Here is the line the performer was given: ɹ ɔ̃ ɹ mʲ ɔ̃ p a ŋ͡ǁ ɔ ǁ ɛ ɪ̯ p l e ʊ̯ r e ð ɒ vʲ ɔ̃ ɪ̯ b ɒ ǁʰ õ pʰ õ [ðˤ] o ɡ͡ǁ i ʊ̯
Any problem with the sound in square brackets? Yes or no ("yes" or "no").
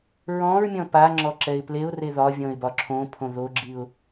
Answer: yes